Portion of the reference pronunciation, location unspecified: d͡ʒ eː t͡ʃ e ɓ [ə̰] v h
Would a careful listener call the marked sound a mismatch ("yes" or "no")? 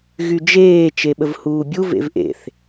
yes